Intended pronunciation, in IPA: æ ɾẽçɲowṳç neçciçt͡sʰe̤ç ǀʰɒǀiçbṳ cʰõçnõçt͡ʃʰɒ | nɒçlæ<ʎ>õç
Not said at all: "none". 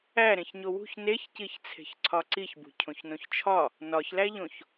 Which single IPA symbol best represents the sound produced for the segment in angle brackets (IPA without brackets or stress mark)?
ʎ